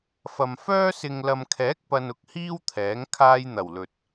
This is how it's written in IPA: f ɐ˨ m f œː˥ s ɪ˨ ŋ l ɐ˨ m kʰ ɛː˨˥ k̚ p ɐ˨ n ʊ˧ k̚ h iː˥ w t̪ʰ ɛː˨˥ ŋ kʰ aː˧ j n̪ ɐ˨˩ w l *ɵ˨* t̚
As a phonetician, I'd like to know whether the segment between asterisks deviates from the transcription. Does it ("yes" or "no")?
no